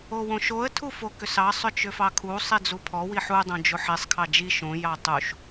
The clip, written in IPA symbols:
o w õ ʃ o ə̯ tʰ u f o k ʏ s ɑ sˤ ʏ t͡ʃ ʏ f ɑ kʰ u sˤ i d͡z u pʰ ɔ w i ħ u dˤ õ d͡ʒ o ħ i sˤ kʰ ɑ d͡ʒ i ʃ õ j ɑ tˤ u ʃ

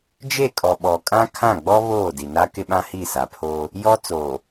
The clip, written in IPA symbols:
d͡ʒ e˦˨ kʼ ɔ˨ ɓ ɔ˨ kʼ ã˦ kʰ ã˦˨ ɡ͡b ɔ˦ β oː˦˨ d i˨ n a˦ k ɪ˦ ɓ ã˦ h i˦˨ s a˨ pʰ oː˦ | j ɔ˦ t͡s oː˨

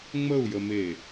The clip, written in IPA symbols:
ŋ͡m ə u̯ j ə m e

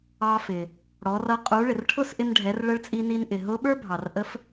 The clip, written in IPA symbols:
ɑ˧ f ɪ˩ | ɽ ɔ˩˧ r ʌ˧ qʼ u˩˧ ɭ ɪ˩ r ʈʰ ʊ˥ s ʔ ɪ˧ n ɖʱ ɛ˩˧ r ɭ ə˧˥ ɭ t͡sʼ i˧ n i˧ n ʔ ɪ˩ ɦ ʊ˧˥ ɓ ə˞˥ bʱ ɑ˩ r ʔ ə˧˥ f

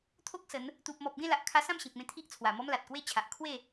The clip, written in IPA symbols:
t̪ʰ o˦ k̚ s ə˨˦ n | t̪ u˨ p̚ m ɔ˨ p̚ ɡ ẽ˥˧ l a˨ ʔ kʰ a˧ s ã˥˧ m ɕ ẽ˨ k̚ m ẽ˧ t̪ʰ i˦ ʔ t͡sʰ w a˨˩ m ɔ˦ m l a˨ t̚ k w e˦ t͡ɕʰ a˨ ʔ kʰ w e˥˧

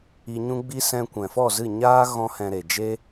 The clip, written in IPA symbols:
i˧ ɲ ũ˦ ɡ͡b i˦ s ɛ̃˧ kʷ ɛ̃˨ f ɔ˦˨ z ɨ˦˨ ɲ aː˦ ɣ ɔ̃˦ h ɛ̃˧ ɾ e˨ d͡ʒ e˦

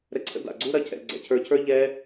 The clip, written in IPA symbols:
ɾ ɛ˧ ǀʰ ə̰˧ d a̰˨ ɡ͡ǀ u˧ ɾ ɐ˧ cʰ ɛ̰˨ ɡ͡ǀ ɛ̰˨ cʰ ə˞˧ cʰ ə˞˦ ʎ ɛ˦

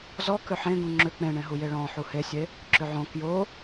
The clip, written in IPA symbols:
z ɔ k ʏ ħ ẽ ɡ ũ ŋ͡ǁ ʏ k͡p ẽ ɳ ẽ ɦ u j e ɭ ɔ̃ ħ u h e sʲ e | ǁ ʏ ʕ õ k j o

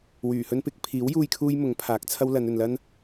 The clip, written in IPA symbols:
w yː˨˩ h ɵ˥ n p ɪ˨˥ k̚ pʰ iː˨˥ w j uː˧ j kʰ uː˥ j m ʊ˨˥ ŋ pʰ aː˨˥ k̚ t͡sʰ ɐ˥ w l ɐ˨˧ n ɵ˨ n l ɐ˥ n

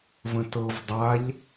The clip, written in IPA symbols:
v ə̃ t ɤ v dˤ a ʎ

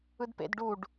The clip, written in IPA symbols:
ɯ d p ḛ d ɖ u ɖ

